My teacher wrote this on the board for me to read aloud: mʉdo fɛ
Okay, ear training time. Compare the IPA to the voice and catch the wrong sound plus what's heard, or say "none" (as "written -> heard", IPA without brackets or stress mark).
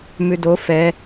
none